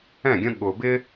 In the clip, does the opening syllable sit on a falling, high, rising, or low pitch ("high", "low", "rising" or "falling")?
falling